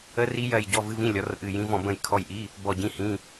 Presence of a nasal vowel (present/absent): present